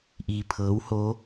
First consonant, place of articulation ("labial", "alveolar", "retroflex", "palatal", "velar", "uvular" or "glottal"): glottal